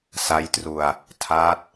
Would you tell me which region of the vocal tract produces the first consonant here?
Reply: tongue tip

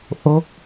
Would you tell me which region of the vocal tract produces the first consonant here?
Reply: throat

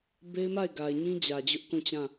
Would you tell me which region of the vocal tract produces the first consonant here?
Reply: lips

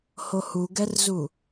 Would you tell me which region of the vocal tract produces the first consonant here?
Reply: throat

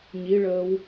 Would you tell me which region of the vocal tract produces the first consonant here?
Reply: palate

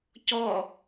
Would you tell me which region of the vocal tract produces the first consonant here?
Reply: palate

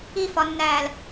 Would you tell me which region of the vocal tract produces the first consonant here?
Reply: lips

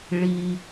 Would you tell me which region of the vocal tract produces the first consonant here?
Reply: retroflex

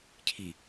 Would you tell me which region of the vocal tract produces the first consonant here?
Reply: palate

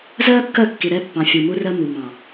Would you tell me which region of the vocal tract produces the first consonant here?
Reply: tongue tip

